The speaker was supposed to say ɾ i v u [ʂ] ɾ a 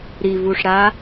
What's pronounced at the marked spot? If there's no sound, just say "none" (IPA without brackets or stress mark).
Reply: ʂ